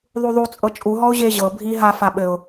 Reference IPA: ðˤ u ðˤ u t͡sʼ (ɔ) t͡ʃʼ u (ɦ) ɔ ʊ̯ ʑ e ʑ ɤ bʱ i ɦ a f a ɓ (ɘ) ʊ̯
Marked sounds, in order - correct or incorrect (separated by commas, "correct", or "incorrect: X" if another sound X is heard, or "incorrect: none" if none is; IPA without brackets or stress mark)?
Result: incorrect: ɤ, correct, correct